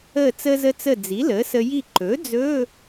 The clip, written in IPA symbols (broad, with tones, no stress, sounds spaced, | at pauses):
əː˧˩ t͡s əː˧ z ə˧ t͡s ə˧˩ d͡z i˩˥ l əː˩˥ s ə˧ j i˧˩ ǃ ɵː˩˥ d͡z ɵ˧˥˧